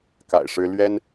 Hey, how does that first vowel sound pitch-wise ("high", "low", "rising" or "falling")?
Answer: low